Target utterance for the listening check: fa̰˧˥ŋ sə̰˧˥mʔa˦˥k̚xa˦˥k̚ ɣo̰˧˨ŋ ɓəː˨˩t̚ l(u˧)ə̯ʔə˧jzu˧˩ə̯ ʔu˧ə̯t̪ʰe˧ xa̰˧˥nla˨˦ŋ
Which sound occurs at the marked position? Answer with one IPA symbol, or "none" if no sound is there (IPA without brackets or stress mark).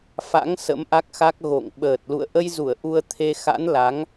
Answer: ṵ˧˨